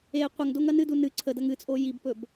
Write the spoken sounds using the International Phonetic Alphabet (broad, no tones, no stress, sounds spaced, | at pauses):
e qʷ ɐ ŋ d o ŋ ɐ n ɨ d u n ɨ ǀʰ ə d ɐ ŋ ɨ t͡sʼ o j i b p ɵ b